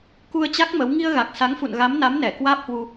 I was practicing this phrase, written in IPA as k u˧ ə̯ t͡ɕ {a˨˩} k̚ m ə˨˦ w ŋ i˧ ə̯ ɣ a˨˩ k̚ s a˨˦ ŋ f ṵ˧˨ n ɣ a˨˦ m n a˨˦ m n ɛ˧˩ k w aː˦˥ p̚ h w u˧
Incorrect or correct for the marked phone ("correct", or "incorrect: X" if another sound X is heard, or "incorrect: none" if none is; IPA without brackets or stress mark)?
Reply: incorrect: a˦˥